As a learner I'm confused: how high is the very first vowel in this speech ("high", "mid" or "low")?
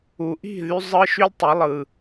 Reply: high